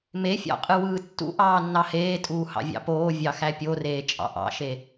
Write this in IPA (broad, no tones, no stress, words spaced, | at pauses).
mefʲɑ̰qʼɯ wɯːtːṵ ʔɑːnːɑheː tʼuːhɑ̰vʲɑ̰poː vʲɑxæpʲoreː t͡ʃʼɑ̰ʔɑ̰ʃe